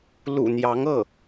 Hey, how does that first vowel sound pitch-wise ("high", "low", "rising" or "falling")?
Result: low